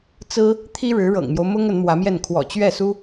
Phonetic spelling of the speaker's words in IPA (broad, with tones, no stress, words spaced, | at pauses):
t͡sɹ̩˥ | t̪ʰi˥ ɻɻ̩˧˥ɻɤ̰˨˩ŋmjo˦ʊ̯ mʊ˥ŋ ə˧˥nmwä˧˥mjɛ˥˩n kʰwɔ̰˨˩t͡ɕɥɛ˥˩su˥